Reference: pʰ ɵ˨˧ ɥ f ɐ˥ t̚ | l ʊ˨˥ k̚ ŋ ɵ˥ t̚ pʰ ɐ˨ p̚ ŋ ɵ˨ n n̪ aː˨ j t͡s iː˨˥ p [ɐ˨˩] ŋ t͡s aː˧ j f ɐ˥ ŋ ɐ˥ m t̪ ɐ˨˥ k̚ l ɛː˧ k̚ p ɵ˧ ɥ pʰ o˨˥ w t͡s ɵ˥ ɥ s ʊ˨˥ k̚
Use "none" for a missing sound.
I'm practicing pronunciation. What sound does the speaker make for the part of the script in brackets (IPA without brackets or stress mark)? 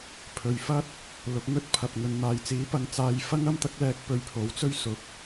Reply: ɐ˨˧